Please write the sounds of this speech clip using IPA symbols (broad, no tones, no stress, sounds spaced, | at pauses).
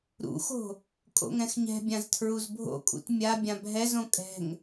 ɾ ṵ x o̤ | kʼ o̰ ŋ ɛ̃ x ɲ ɛ̤ bʲ ã z tʰ ɹ u z bʱ o̰ kʼ ṵ t mʲ a bʲ ã bʱ ɛ z õ kʼ ɛ̤ ŋ